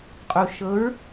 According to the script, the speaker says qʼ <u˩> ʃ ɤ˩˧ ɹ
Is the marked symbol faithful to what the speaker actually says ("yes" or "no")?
yes